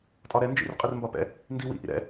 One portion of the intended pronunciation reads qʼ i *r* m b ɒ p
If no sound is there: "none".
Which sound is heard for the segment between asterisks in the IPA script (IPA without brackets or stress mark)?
r